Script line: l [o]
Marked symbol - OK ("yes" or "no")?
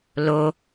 yes